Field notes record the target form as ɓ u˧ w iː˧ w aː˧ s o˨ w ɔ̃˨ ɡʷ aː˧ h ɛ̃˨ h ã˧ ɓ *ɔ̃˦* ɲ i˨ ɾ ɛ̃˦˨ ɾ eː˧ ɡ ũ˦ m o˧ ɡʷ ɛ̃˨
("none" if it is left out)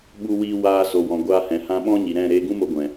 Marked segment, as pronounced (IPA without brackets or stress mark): ɔ̃˦